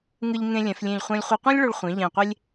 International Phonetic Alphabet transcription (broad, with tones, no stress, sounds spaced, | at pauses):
ŋ ɯ˧ ʎ ŋ ẽ˧ lʲ ɛ̃˩˧ f lʲ ẽ˧˩ ʎ χʷ ɛ̃˧ lʲ χʷ ʌ˧ qʷ ɛ̃˥ lʲ ɭ o˧ ɭ χʷ ẽ˩˧ ʎ ɛ̃˧˩ qʷ e˥ lʲ